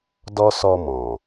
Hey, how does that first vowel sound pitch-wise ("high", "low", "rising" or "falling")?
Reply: high